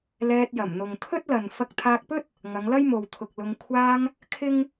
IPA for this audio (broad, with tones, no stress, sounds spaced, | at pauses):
l ɛː˧ t̚ j ɐ˨˩ m n̪ ʊ˨ ŋ t̪ʰ ɵ˥ t̚ l ɐ˨ n f ɐ˧ k̚ t̪ʰ aː˧ k̚ p ɵ˥ t̚ | ŋ ɐ˨˧ ŋ l ɐ˥ j m o˨ w t̪ʰ ʊ˨ k̚ l ʊ˧ ŋ kʷʰ aː˧ ŋ | kʰ ɪ˥ ŋ